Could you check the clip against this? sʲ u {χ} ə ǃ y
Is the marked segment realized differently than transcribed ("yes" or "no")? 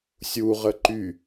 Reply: yes